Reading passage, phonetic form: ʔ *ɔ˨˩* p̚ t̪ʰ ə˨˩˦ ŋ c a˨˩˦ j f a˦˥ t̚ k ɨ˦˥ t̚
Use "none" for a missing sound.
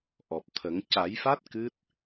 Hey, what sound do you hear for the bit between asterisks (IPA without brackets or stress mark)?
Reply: ɔ˨˩